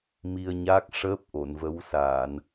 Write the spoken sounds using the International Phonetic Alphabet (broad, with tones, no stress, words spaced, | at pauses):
mi˧ə̯ɲaː˦˥k̚ ʂəː˦˥p̚ ʔo˨˩˨nvə˧˥wsaː˨˩˨n